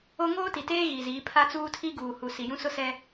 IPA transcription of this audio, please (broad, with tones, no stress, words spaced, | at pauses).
o˦ ŋoː˦ti˨teː˦ ɣi˨ziː˨˦ pʰa˦t͡suː˦tʰi˦ ɡuː˨hu˨si˨jũ˦ sʊ˦sɛ˦